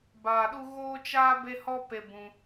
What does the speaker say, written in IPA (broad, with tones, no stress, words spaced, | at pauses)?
baː˧ɗu˦ ɣoː˦t͡ʃaː˦ be˦hɔ˦pe˧ bũ˧